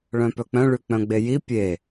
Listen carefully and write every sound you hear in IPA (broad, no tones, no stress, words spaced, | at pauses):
ɭœ̃pœk͡pœ̃ ɭyk͡pœ̃ɡ͡beji pʲe